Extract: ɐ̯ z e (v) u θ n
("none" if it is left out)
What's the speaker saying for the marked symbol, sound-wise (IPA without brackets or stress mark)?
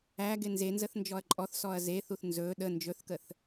θ